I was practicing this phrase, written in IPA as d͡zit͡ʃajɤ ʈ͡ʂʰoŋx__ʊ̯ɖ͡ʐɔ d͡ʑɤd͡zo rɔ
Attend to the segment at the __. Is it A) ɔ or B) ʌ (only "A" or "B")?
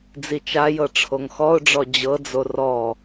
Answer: A